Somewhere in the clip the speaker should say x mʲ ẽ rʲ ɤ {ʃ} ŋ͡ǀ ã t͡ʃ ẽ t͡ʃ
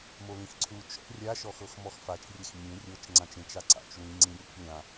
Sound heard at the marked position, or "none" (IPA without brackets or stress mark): t͡ʃ